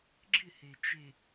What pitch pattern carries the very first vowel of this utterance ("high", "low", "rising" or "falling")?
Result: falling